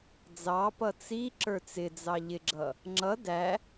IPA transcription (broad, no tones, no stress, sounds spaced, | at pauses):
d͡z ɑ p ʌ t͡s i ǁ ə˞ t͡s ɪ d͡z ɑ ʎ ɪ ɡ͡ǁ ʌ | ŋ͡ǁ ʌ d æ